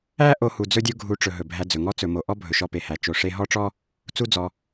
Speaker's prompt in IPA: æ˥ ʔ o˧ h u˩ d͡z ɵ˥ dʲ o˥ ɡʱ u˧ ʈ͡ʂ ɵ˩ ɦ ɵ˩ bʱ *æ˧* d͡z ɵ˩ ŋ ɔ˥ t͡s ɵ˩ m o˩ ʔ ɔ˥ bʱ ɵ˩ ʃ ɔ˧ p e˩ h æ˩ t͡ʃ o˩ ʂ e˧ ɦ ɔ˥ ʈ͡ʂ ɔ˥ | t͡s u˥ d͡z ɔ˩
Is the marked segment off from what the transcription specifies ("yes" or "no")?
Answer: no